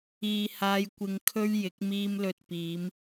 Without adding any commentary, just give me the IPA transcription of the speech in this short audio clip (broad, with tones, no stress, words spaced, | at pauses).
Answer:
iː˨haː˧j kʷɪ˧ŋkʰɵ˥ɥjɪ˨˥k̚ miː˧mlɵ˨t̚ piː˨˧m